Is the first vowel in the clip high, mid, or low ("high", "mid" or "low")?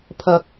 low